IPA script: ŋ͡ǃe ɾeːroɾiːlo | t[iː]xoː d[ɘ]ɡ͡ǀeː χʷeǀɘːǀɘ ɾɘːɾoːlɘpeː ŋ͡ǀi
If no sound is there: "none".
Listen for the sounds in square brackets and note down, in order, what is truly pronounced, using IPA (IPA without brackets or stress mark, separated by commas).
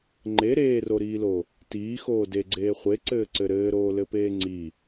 iː, e